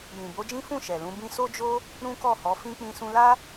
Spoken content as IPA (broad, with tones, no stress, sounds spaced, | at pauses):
j ĩ˨ b o˨˦ d͡ʒ ĩ˦ f ũ˦˨ ʃ ɛ˨ l ũ˨˦ b ĩ˦ s o˦ d͡ʒ o˦ | ɾ ũ˦ k ɔ˦˨ h ɔ˨˦ f ĩ˦ k͡p ĩ˧ s ũ˧ l a˦